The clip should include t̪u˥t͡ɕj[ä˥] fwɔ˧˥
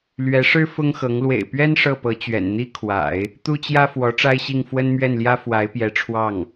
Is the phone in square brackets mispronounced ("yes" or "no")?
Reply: no